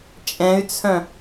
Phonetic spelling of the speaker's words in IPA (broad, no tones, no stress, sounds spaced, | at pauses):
t͡ʃʼ ɛ̃ y̯ t͡sʰ œ̃